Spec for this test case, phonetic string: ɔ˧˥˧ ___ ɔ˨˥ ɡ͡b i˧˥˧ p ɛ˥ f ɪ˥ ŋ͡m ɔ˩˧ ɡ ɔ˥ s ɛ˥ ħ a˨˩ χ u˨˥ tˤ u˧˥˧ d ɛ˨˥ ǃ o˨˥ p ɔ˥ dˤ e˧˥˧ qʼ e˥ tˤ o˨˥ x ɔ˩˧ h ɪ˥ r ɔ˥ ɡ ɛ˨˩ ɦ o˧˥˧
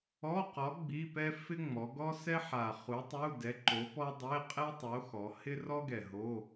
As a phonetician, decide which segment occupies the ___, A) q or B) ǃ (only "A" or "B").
A